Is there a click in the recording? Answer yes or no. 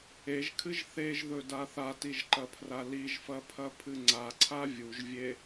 yes